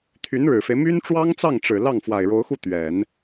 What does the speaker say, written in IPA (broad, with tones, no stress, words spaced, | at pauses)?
t̪ʰy˧˥nɻɻ̩˨˩fe˦ɪ̯ my˥n ʈ͡ʂwɑ˥ŋt͡sɑ˥˩ŋʈ͡ʂɻ̩˨˩ lɑ˥˩ŋ fwa˨˩ɪ̯ɻo˧˥ʊ̯xu˥˩ t̪ɥɛ˨˩˦n